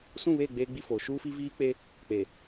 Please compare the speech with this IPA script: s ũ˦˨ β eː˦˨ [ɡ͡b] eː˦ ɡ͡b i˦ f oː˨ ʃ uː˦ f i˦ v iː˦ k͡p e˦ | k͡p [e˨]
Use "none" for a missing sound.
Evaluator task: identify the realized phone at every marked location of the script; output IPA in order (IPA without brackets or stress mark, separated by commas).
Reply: ɡ͡b, e˨